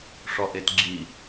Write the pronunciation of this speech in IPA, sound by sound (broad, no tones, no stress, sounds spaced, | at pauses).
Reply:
ʂ ɔ ʔ e t ɡ͡ǁ i